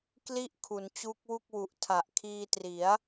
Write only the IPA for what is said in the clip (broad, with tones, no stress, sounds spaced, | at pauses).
k l i˥˩ ʔ kʰ u˩˦ n t͡ɕ u˦˥ k̚ w u˥˩ k̚ w u˨˩ ʔ tʰ a˨˩ ʔ kʰ iː˧ t r i˩˦ a̯